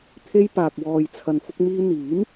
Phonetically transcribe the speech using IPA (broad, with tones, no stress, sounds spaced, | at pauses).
t̪ʰ e˧ j p aː˨ k̚ w ɔː˨ j t͡sʰ ɐ˨ n f ʊ˧ k̚ m iː˧ n̪ iː˨˥ m